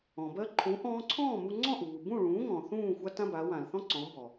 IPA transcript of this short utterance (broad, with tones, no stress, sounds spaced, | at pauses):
ɔ̃˩ b ɜ˧ ǃʰ ũ˩˥ ʔ ɔ̃ː˧ ǀʰ ɔ̃ː˥˩ m u˧ ŋ͡ǀ ɔ̃˥˩ ʔ uː˩ b ũ˥˩ ɭ ũː˩˥ ŋ ɔ̃˩ θ ũː˥˩ xʷ a˥ t ã˥ b a˩˥ w ã˩ l θ ɔ̃˥ ǀ ɔ̃˩˥ b ɔ˩